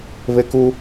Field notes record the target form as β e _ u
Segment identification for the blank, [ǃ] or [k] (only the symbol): k